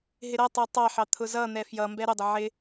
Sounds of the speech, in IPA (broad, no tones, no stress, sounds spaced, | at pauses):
ɦ ɪ ɾ ʌ tˤ ə˞ tˤ ɑ ħ ɑ t̪ʰ ʊ z ʌ n̪ ɛ f j ʌ m b ɛ ɾ ʊ dˤ ə ʕ ɪ